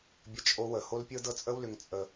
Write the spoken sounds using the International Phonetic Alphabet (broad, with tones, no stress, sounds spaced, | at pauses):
bʲ ə˦ t͡ʃʼ o˧ w ə˨ h o˦ l pʲ ɤ˦ d ɤ˦ t͡sʼ ə˦ w l ʏ˧ ŋ t͡sʼ ə˧